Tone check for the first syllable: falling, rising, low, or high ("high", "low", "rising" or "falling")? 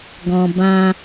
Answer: low